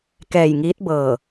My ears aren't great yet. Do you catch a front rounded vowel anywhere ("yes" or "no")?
no